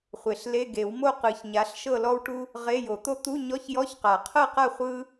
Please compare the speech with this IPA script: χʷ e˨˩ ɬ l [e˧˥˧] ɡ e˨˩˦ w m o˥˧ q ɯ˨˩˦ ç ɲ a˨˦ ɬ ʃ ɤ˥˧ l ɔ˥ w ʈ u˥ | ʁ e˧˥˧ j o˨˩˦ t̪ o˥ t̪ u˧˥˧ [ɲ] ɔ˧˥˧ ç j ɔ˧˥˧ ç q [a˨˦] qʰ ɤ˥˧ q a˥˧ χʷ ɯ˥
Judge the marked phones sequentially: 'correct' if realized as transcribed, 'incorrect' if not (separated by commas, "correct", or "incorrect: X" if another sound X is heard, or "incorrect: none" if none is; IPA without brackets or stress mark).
correct, correct, incorrect: a˨˩˦